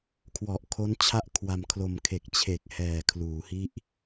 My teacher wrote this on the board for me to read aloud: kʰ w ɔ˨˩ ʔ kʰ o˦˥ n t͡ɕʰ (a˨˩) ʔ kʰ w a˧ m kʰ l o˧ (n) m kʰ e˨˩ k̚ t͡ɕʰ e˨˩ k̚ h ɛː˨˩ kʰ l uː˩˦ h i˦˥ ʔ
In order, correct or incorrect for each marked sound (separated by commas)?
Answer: incorrect, incorrect